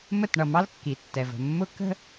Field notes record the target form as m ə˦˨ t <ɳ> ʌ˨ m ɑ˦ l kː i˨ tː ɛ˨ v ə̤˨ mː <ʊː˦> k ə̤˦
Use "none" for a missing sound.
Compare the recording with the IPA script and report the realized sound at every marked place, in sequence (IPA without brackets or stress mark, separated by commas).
ɳ, ʊ˦